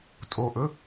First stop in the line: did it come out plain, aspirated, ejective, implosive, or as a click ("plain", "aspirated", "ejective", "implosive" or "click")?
ejective